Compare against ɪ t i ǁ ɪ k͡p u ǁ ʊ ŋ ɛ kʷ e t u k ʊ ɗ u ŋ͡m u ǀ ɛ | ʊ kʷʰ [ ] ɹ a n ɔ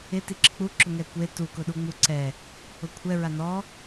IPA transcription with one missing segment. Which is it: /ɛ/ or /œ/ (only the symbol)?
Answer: ɛ